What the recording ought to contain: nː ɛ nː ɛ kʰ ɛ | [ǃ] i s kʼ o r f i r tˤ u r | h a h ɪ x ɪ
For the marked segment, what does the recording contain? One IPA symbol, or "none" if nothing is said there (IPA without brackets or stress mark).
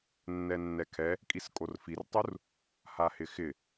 kʼ